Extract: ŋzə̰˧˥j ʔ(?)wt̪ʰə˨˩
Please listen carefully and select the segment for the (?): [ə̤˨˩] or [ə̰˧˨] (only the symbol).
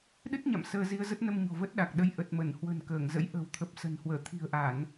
ə̤˨˩